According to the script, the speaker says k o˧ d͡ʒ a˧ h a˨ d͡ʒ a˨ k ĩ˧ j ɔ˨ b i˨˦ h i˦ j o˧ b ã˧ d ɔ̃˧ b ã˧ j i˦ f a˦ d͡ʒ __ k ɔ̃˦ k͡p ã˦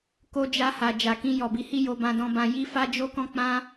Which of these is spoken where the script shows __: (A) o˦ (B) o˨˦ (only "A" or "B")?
A